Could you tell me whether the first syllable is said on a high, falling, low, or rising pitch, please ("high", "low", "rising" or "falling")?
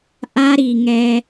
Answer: high